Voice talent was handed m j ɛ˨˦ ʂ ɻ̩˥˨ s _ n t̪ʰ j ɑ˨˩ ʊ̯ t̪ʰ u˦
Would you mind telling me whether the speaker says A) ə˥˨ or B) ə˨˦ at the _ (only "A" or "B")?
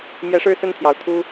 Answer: A